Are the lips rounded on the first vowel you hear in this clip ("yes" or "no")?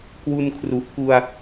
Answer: yes